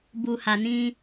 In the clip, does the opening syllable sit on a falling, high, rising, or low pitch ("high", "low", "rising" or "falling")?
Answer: low